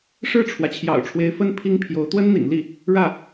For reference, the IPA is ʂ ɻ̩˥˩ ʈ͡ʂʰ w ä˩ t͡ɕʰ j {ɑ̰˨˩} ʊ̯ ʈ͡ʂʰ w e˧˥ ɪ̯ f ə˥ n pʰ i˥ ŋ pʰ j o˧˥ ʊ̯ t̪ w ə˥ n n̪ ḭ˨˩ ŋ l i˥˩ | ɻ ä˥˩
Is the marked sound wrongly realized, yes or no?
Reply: no